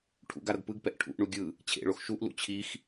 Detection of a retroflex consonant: present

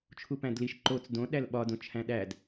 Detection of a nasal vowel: present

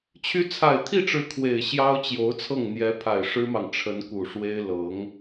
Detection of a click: absent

